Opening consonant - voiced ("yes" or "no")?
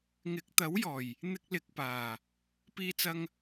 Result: yes